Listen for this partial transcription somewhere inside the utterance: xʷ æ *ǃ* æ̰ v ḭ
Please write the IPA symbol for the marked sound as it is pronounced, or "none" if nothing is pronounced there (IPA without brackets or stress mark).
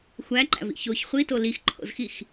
ǃ